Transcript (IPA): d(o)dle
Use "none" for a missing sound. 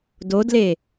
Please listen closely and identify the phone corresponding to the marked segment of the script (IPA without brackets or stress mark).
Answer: o